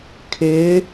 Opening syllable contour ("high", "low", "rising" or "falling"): rising